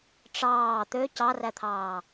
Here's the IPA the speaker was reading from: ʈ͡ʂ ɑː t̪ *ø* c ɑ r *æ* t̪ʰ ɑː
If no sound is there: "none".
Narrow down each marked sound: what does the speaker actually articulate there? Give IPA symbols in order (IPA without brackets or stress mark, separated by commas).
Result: ø, æ